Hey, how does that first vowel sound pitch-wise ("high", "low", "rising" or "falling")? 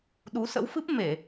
rising